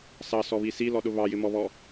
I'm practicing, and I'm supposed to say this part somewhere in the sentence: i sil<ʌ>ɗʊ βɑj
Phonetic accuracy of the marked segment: incorrect: ɔ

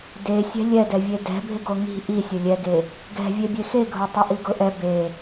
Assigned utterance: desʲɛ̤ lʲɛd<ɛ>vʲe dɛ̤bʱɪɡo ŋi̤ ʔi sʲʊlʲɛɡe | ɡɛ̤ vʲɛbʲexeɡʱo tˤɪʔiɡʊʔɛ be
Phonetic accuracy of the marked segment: correct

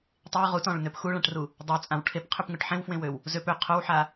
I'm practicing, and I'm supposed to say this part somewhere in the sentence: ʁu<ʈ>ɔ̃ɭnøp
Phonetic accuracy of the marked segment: incorrect: t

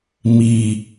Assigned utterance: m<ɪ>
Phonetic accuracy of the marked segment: incorrect: i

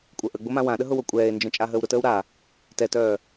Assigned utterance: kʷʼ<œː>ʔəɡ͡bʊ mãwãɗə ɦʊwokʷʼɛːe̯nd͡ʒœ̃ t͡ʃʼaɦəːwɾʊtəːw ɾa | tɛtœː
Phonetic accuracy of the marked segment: incorrect: œ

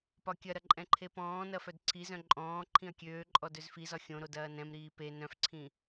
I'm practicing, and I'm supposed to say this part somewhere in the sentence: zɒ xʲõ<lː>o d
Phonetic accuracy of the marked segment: incorrect: ɾ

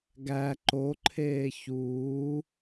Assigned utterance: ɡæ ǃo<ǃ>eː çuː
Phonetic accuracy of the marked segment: incorrect: ǃʰ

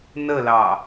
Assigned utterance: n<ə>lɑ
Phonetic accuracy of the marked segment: correct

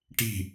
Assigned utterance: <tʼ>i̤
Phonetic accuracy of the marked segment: incorrect: ʈ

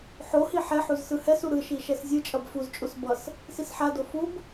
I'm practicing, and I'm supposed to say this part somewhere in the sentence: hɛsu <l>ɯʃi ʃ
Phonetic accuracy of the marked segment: incorrect: ɾ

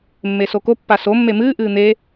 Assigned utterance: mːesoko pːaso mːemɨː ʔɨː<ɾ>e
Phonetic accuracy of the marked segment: incorrect: n̪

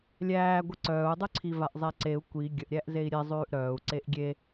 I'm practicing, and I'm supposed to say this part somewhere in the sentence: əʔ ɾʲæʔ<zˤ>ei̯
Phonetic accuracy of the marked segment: incorrect: z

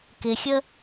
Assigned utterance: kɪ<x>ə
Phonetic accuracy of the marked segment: incorrect: xʲ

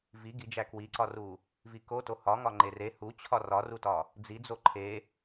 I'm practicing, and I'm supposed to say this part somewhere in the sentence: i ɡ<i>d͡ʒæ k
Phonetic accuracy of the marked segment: correct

